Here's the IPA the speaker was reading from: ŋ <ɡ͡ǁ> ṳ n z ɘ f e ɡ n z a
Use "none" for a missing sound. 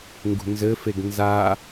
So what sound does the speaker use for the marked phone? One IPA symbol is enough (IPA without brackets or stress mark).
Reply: ɡ